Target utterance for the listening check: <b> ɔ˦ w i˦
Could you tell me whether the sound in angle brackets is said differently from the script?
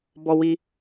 no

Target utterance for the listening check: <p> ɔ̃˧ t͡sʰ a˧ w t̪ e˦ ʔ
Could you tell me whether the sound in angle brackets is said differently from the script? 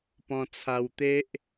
no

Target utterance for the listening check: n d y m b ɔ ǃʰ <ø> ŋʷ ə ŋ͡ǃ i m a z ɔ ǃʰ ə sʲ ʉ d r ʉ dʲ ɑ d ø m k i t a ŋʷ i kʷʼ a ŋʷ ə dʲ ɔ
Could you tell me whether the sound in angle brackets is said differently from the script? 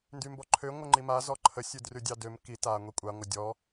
no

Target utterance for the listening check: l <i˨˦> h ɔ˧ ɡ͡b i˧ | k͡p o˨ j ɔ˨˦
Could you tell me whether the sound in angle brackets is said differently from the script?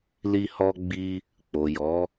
yes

